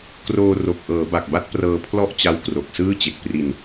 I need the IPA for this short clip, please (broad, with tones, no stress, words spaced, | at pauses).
kroː˧ ro˨˩k̚ ʔɤː˩˦ba˨˩k̚ba˦˥t̚ prɤː˧pʰlɔ˥˩ʔt͡ɕa˦˥w kro˨˩k̚sɯː˥˩ t͡ɕe˨˩k̚pri˧n